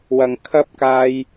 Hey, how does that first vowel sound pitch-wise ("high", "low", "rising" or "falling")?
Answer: low